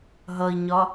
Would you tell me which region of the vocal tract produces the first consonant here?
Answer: throat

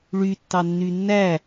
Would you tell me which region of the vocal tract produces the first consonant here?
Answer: retroflex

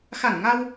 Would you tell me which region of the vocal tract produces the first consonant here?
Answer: velum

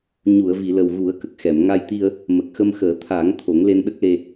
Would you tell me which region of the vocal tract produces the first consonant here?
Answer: palate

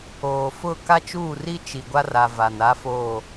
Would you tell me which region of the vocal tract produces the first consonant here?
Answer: lips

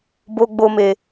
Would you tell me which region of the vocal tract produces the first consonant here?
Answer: lips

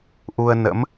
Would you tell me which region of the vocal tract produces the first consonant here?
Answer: throat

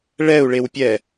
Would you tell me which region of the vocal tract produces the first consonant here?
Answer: retroflex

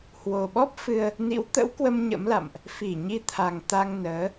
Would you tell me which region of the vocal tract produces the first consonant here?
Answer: throat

